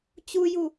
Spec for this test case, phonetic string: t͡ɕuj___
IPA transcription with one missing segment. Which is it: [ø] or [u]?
u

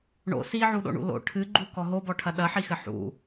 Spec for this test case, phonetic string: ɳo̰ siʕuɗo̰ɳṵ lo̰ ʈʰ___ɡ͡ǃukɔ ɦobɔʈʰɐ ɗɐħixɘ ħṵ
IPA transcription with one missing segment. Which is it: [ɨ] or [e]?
ɨ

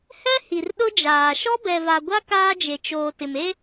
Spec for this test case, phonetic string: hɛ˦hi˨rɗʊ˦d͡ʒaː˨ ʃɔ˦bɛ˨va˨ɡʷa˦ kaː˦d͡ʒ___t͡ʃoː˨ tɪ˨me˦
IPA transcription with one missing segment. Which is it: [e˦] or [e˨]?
e˨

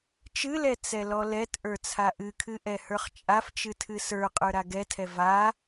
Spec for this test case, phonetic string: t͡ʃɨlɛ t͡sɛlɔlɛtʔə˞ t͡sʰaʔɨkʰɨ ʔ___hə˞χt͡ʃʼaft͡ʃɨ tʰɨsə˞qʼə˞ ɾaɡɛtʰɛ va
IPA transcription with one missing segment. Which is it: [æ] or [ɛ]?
ɛ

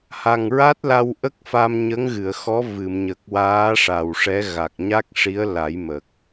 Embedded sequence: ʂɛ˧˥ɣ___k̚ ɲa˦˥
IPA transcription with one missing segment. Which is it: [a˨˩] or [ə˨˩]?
a˨˩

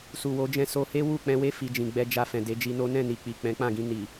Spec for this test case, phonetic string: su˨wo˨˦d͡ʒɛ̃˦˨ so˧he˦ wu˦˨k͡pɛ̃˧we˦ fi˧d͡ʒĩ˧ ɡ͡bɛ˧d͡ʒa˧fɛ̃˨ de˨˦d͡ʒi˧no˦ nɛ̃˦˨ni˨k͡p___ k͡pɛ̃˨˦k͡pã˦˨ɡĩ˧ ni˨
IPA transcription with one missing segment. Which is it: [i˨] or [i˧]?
i˨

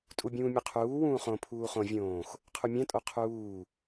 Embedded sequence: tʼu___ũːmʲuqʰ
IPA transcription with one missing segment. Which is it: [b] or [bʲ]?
bʲ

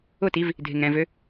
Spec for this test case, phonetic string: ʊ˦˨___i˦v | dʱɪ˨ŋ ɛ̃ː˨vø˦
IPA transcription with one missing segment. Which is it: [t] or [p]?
t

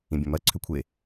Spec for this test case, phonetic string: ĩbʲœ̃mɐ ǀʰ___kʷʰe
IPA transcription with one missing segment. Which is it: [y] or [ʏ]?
ʏ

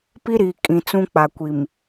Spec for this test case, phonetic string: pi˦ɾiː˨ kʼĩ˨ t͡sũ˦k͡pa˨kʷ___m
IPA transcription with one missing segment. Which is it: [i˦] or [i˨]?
i˨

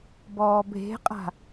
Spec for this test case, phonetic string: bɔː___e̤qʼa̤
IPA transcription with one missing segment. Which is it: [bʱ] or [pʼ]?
bʱ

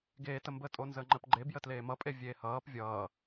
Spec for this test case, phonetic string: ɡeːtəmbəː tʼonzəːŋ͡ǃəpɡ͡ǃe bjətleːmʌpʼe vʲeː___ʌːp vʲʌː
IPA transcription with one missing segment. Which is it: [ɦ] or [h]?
h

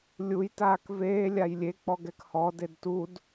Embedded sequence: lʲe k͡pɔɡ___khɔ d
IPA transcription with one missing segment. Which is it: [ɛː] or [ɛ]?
ɛ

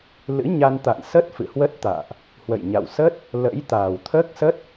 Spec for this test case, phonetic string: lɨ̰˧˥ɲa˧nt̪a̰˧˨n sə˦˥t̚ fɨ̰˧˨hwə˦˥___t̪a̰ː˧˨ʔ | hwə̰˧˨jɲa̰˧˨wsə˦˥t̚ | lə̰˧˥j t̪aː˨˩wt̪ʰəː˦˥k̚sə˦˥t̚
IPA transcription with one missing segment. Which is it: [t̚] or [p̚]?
t̚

